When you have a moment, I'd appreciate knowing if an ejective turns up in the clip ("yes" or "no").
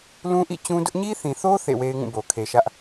no